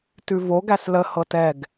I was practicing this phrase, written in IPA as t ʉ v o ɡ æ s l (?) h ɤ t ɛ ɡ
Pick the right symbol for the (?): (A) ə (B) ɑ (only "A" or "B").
A